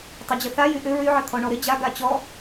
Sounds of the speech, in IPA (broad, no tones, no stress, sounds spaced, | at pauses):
tˤ ə d͡ʑ ə θ a j y ʔ ʏ ɹ y ʕ ə t̪ʰ ɔ ɳ ɔ ɾ ɪ d͡ʑ a ɡ a t͡ɕ ɔ